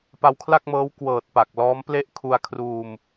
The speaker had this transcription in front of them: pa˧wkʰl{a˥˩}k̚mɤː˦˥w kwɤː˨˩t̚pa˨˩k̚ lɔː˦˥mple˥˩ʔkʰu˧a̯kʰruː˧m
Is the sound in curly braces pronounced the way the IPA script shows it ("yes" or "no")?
yes